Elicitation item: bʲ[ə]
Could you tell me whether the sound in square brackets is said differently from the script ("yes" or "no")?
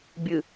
yes